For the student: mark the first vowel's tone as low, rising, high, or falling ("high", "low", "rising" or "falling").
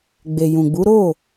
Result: low